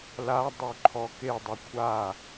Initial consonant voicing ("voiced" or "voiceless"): voiced